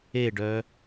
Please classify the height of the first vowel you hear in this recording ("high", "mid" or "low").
mid